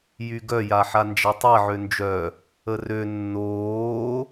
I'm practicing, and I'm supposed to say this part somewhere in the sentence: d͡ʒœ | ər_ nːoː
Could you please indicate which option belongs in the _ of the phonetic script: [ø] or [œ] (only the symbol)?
ø